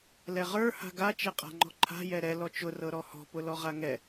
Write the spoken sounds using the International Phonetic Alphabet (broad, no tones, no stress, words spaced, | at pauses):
lɛʁə˞ ha̤ɡa t͡ʃɛqʼa̤ŋ͡ǃɔ̤ǃʰa̤ jɛɾɛ lɔt͡ʃʊ rɤɾɔhɔ̤ pʊlɔʁaŋɛ